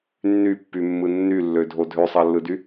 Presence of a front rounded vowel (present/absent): present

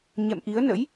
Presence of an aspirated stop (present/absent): absent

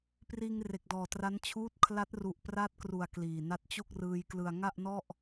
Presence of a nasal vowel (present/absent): absent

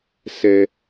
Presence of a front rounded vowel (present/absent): absent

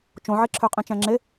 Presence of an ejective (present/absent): present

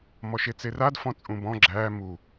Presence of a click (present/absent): present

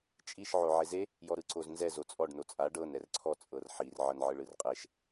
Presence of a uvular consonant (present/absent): present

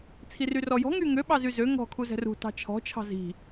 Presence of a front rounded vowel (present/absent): present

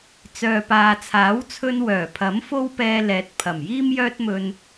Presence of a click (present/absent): absent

